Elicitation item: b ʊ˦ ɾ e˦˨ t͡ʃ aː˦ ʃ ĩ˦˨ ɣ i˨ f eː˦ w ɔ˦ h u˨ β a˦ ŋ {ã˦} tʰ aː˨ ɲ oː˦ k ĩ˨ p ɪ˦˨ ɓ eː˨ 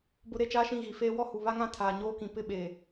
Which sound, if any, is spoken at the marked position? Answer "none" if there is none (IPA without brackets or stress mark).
ã˦